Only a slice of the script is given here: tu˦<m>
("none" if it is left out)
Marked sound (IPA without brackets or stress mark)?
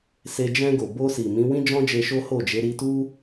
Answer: none